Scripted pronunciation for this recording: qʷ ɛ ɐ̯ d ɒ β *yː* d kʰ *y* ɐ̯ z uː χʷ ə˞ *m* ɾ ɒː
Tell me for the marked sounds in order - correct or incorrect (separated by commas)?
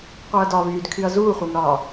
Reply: correct, correct, correct